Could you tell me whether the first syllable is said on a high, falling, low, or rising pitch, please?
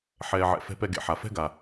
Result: low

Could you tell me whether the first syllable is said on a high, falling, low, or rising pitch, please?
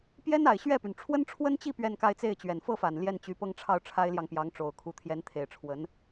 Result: high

